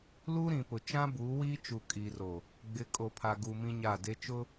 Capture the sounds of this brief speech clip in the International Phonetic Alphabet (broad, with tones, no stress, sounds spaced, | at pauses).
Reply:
l u˦ ɾ ĩ˨ p ʊ˨ t͡ʃ ã˦ b uː˨˦ w iː˦ t͡ʃ u˨ kʼ iː˨ r o˨ | ɡ͡b ɪ˨˦ kʼ o˨ pʰ a˨ ɡ u˨ m ĩ˦ ɲ a˦˨ d e˦ t͡ʃ ʊ˦